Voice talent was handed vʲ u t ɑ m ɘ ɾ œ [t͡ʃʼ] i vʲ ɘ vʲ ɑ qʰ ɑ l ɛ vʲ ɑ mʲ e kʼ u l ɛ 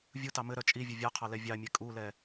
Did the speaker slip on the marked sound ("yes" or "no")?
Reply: no